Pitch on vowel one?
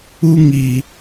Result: high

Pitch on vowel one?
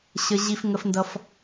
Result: high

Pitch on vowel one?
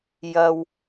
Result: low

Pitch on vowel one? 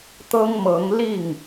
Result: high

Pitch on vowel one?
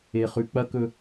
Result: low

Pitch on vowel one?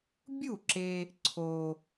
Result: falling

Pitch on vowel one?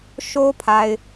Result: high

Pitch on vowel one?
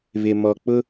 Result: low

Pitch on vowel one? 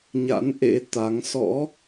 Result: rising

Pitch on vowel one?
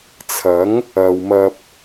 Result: rising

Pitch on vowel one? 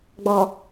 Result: low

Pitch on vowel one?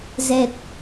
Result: low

